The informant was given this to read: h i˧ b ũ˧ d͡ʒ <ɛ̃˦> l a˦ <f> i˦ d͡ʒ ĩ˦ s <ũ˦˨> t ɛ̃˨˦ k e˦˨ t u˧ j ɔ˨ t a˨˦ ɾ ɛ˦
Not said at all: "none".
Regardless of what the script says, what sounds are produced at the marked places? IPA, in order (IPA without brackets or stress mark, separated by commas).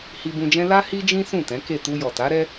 ɛ̃˦, h, ũ˦˨